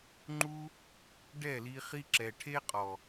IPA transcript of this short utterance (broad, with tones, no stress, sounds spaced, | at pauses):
ŋ͡ǃ u˧ | ɖ ɛ˦˨ l i˧ χ i˧ ǁ ɛ˨ ʈʰ e˦ qʼ ɔ˨